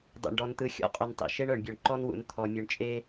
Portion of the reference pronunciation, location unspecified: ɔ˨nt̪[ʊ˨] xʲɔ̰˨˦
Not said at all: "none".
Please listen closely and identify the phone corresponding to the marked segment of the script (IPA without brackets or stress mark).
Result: ɯ˨